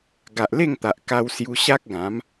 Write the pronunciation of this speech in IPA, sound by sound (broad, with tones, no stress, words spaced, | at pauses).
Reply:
ɡa˨ʔle˥˧ŋt̪a˨ʔ ka˧wsju˧ɕa˦k̚ɡã˨˦m